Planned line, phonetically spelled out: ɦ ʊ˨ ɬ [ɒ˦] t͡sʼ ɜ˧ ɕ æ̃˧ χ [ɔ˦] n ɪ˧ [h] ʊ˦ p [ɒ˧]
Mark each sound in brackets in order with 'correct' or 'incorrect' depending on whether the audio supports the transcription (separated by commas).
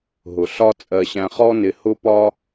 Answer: correct, correct, correct, incorrect